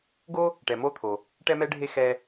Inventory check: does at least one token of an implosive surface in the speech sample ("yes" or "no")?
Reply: no